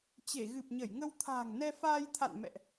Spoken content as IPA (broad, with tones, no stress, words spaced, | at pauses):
t͡ɕe˧˩ɣɨ˨˩p̚ɲə˧˩jŋə˧w t̪ʰa̤ː˨˩ŋnɛ˧faː˧jt̪ʰa̰˧˨n mɛ̰˧˨ʔ